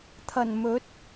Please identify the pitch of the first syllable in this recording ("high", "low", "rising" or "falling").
low